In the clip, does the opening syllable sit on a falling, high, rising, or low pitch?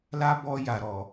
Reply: high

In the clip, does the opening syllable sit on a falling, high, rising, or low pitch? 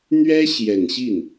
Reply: high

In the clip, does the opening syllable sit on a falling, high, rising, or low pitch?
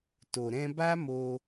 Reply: low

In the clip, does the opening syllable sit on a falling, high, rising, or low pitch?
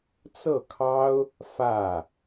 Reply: falling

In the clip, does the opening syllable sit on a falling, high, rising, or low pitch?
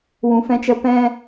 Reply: low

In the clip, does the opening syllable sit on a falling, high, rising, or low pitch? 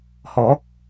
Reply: rising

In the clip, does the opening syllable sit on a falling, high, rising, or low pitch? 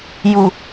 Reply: low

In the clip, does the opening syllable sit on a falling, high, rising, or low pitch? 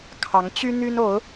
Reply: rising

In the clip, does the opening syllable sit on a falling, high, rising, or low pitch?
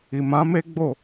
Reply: low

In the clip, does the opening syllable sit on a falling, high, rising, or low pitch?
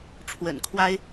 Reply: low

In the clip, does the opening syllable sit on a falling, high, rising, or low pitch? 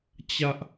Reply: high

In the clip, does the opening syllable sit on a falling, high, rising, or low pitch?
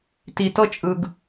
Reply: low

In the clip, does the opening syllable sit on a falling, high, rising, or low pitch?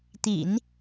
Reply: low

